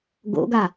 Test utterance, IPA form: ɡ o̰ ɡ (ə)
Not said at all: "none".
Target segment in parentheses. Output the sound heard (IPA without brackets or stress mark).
a